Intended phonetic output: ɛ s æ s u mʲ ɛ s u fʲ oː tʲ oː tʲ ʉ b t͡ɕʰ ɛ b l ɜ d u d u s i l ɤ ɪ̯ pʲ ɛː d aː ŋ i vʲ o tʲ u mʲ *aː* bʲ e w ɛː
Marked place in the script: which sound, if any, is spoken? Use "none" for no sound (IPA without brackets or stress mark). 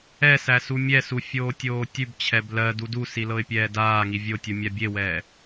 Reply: a